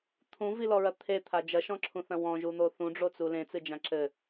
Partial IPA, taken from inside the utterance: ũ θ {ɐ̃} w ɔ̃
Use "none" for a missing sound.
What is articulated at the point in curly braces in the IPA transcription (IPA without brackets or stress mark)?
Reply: ɐ̃